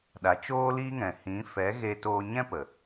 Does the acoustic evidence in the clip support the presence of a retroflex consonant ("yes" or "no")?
no